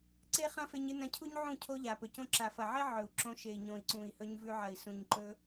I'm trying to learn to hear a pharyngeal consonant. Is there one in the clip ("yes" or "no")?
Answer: yes